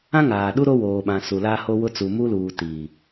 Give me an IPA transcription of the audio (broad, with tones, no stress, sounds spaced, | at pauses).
ã˦ ŋ aː˨ ɗ u˦ ɾ o˦ w oː˨ ɓ ã˨ s u˨ l aː˦ h o˦ w ʊ˦ t͡s u˨ m u˦ l uː˨ t iː˨